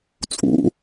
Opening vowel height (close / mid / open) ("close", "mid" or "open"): close